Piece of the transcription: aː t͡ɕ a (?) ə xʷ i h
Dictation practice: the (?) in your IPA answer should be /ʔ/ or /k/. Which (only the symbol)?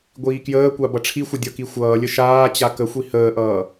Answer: k